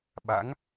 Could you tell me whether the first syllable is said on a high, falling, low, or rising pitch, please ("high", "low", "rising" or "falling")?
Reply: rising